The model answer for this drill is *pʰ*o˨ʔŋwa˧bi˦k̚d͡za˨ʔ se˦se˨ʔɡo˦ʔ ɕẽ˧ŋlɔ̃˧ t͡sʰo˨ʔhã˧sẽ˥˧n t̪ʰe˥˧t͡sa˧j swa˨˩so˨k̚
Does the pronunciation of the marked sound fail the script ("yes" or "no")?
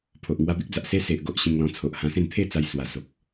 no